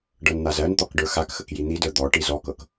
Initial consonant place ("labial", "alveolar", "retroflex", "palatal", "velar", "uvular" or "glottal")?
retroflex